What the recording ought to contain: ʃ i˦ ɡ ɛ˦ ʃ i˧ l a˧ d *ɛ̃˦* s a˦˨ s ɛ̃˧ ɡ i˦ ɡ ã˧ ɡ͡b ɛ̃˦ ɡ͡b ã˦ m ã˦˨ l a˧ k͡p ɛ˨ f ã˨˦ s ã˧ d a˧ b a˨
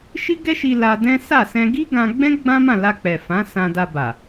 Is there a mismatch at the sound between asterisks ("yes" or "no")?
no